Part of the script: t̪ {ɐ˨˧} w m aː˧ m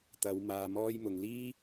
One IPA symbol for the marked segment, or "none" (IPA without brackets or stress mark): ɐ˨˧